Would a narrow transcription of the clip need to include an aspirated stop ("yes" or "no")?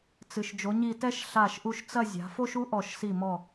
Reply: no